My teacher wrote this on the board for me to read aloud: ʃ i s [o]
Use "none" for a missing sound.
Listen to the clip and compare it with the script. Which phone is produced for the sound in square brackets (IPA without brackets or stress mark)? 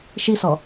ɔ